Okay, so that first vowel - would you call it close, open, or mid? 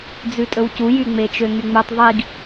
close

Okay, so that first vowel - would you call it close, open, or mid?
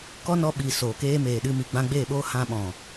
mid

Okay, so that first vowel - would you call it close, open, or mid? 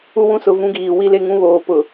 close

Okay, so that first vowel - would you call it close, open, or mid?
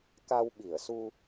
open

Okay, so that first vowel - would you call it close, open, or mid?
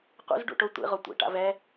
close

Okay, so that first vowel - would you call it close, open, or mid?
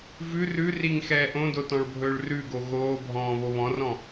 close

